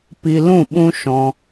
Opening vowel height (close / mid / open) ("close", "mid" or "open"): close